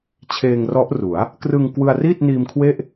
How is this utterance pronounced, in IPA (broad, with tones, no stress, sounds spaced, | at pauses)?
t͡ɕʰ eː˧ ŋ r ɔ˦˥ ʔ r u˩˦ a̯ | k r ɯ˧ ŋ k w ɯ˧ a̯ r iː˥˩ t̚ n iː˧ m kʰ w e˥˩ ʔ